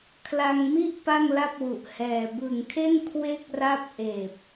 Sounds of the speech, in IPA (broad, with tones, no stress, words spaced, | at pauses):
kʰla˧ŋmi˥˩ʔ pa˥˩ŋla˥˩p̚wu˨˩ʔ hɛː˨˩ bɯ˨˩ŋkʰe˥˩n kʰwe˦˥k̚ ra˥˩p̚ʔeː˨˩p̚